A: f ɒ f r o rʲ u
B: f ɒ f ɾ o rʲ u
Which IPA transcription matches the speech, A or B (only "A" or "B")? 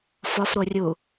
B